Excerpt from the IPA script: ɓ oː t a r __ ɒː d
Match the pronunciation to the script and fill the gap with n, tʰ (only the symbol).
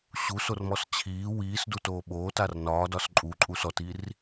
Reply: n